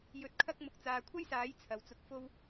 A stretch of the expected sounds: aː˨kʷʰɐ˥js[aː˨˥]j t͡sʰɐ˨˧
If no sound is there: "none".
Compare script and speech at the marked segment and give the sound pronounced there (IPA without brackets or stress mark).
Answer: aː˨˥